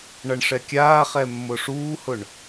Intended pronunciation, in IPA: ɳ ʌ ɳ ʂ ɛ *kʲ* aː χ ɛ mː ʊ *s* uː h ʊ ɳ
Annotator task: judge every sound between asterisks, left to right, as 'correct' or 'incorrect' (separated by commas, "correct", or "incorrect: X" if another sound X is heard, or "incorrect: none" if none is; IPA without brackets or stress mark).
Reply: correct, incorrect: ʂ